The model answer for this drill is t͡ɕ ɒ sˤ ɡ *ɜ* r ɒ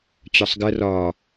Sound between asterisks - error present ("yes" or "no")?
no